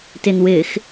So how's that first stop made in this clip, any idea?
plain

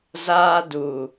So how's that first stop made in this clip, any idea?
plain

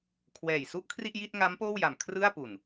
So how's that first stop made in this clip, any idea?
aspirated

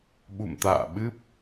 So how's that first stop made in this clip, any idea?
implosive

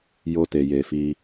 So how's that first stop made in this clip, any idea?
plain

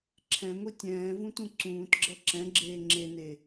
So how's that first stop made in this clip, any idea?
click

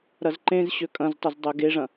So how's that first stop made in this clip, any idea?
click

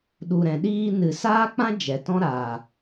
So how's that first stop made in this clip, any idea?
implosive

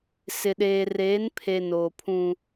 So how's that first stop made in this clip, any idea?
implosive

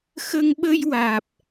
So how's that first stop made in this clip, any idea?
implosive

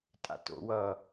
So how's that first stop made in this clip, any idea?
ejective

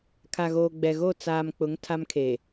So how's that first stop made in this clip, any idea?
aspirated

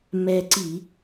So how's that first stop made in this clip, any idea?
click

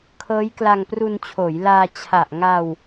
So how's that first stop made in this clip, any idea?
aspirated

